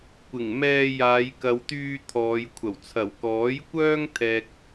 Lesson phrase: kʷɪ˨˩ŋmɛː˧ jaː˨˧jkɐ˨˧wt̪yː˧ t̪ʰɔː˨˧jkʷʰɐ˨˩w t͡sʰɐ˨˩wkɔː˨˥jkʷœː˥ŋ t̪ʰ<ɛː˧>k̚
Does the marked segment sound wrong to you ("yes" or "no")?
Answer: yes